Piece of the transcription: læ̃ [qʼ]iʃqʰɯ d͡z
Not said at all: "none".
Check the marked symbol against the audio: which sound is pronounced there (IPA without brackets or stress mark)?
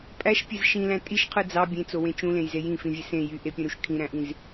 tʼ